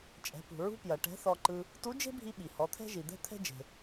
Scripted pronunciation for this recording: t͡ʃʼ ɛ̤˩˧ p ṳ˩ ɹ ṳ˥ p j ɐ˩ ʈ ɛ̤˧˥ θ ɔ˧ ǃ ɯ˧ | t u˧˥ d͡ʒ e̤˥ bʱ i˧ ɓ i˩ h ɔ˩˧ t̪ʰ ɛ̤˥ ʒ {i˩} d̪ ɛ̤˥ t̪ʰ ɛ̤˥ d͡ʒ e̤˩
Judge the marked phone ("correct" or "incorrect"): correct